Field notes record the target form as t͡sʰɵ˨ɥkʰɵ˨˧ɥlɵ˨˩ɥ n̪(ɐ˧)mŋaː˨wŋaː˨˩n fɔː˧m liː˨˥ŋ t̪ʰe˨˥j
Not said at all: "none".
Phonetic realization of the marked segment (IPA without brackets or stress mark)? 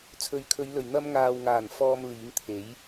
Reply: ɐ˧